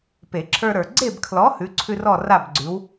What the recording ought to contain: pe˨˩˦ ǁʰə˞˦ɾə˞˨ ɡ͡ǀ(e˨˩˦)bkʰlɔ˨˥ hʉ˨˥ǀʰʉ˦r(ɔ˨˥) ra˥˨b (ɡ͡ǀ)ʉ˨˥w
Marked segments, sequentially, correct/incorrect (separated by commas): incorrect, incorrect, correct